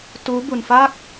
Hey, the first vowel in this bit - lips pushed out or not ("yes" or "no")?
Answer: yes